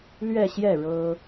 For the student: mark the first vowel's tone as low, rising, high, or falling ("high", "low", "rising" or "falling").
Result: falling